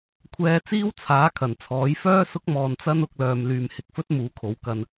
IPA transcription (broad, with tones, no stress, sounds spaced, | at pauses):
kʷʰ ɛː˧ t͡s iː˥ w t͡sʰ aː˨˥ kʰ ɐ˨˩ n t͡sʰ ɔː˨˥ j f œː˥ s ʊ˥ k̚ m ɔː˧ n t͡s ɐ˥ n ʊ˧ k̚ l œː˨ m l yː˨ m h ɪ˧ k̚ f ɵ˥ t̚ m uː˨˥ kʰ o˨˥ w k ɐ˧ n